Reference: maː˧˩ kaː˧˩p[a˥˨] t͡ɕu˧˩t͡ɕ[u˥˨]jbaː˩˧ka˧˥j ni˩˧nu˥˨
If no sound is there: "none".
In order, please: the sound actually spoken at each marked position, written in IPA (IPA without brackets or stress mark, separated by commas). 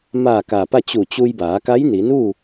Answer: a˥˨, u˧